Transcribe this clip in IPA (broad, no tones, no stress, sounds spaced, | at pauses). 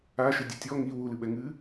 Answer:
a ʃ ɨ dʲ ɘ tʲ ɔ ŋ i w u l ɨ ɓ ɛ ŋ ɨː